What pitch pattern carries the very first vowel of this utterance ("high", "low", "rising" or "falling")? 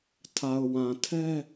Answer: low